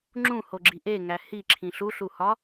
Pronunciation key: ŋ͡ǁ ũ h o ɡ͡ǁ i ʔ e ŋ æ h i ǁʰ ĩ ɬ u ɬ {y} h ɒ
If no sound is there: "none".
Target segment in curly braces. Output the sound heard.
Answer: u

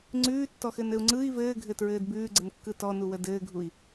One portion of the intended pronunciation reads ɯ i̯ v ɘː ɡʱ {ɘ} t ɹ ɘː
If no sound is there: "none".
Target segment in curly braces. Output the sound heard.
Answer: ɘ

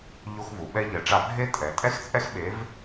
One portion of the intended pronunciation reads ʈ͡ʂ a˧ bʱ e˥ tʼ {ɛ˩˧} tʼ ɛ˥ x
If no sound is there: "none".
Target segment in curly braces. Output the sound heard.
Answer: ɛ˩˧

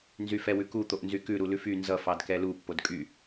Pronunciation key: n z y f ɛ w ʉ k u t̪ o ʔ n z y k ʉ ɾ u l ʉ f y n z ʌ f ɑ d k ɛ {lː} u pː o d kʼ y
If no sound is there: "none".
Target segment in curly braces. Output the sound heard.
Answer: l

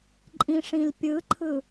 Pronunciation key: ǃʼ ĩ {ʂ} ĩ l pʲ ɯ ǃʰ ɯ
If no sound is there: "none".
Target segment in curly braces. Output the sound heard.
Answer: ʂ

